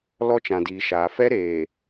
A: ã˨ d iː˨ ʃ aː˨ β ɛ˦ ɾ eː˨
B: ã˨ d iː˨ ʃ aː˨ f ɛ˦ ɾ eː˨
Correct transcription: B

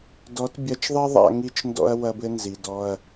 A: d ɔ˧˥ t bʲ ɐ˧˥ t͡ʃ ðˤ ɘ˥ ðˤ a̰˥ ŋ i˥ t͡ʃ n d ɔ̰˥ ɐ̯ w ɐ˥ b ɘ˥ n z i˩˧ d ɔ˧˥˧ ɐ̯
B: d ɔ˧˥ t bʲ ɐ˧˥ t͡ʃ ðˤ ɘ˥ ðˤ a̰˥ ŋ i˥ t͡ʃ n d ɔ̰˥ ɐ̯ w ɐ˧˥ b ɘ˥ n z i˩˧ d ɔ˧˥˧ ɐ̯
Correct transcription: A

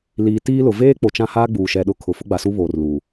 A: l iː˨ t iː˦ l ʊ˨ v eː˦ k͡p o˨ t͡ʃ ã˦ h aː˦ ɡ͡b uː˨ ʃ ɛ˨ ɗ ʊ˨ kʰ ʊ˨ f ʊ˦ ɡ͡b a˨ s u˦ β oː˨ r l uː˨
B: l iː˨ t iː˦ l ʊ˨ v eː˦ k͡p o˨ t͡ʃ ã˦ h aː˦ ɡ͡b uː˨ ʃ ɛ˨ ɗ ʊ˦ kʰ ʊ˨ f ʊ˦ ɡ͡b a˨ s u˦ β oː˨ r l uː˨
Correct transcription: A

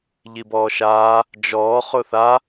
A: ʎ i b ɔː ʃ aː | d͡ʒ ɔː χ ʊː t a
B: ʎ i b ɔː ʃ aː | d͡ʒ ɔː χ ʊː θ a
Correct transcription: B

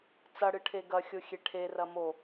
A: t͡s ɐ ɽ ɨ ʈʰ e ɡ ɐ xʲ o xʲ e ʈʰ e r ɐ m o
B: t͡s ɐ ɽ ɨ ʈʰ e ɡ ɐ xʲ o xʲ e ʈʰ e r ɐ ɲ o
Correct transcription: A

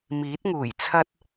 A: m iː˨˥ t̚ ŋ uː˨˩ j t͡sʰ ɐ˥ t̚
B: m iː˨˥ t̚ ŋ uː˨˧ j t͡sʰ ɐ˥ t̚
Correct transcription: A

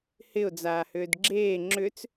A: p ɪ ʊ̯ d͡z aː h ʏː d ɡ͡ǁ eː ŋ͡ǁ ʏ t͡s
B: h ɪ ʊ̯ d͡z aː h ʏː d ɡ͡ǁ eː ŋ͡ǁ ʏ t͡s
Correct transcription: B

